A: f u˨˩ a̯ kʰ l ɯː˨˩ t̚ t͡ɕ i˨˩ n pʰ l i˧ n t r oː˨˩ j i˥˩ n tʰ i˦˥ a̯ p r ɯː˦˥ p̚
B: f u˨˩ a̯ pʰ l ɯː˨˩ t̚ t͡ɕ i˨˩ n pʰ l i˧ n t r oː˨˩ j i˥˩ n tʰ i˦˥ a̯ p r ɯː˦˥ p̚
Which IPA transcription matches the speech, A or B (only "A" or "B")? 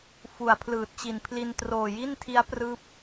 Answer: B